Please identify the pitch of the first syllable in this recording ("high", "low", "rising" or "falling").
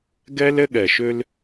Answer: high